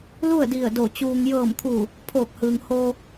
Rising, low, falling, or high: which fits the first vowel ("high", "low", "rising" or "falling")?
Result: falling